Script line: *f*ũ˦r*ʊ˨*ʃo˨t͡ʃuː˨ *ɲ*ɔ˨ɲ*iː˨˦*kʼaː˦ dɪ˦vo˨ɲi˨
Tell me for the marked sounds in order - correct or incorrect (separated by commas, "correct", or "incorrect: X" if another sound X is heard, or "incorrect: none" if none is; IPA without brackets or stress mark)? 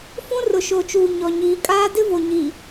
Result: correct, correct, correct, correct